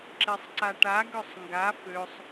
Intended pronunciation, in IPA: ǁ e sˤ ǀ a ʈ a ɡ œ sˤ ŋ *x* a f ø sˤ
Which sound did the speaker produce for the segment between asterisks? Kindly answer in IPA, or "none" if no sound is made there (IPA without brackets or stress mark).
ɡ